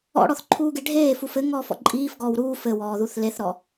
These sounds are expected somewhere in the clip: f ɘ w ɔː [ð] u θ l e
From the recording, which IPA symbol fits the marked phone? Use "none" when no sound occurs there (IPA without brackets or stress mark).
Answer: ð